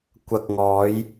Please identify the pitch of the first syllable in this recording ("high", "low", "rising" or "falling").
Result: low